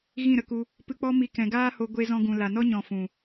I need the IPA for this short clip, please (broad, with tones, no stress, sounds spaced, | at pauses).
ɣ ĩ˦˨ ɾ ə˧ k u˧ | p ɨ˧ k͡p ɔ˦ m i˧ k ɛ̃˨ ɡ aː˦ h o˧ ɡʷ e˧ z ɔ̃˧ ɡ ũ˨ l a˨ n ɔ˦ ɲ ɔ̃˧ f ũ˨